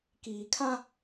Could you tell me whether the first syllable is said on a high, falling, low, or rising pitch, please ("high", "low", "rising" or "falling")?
low